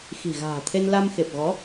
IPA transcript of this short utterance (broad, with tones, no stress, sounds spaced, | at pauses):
x i̤˨˩ ɣ a̤ː˨˩ t̪ʰ e˧ n l a˧ m x e˨˩ p̚ ɣ ɔ˨˦